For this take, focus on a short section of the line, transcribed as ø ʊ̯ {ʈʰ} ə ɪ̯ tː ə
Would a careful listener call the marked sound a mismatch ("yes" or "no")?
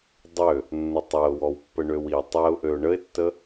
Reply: yes